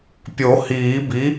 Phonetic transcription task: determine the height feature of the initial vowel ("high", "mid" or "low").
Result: mid